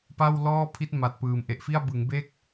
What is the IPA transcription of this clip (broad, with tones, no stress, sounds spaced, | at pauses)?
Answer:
p a˥˩ w l ɔː˥˩ pʰ i˦˥ t̚ m a˨˩ t̚ p ɯː˨˩ m ʔ e˨˩ ʔ f i˥˩ a̯ b ɯ˩˦ ŋ b e˦˥ k̚